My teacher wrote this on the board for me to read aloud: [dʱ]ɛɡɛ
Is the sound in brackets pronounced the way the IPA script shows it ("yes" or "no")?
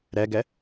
no